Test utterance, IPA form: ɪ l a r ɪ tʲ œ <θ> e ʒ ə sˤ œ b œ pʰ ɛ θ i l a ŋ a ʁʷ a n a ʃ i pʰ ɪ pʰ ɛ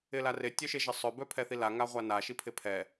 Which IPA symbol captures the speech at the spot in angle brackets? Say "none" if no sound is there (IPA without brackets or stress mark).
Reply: ʃ